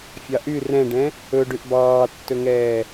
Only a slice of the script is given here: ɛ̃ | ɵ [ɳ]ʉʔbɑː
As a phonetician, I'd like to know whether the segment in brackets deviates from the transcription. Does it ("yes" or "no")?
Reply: yes